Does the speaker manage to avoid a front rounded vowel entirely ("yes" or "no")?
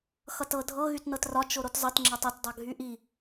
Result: no